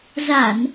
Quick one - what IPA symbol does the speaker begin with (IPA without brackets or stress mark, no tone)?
z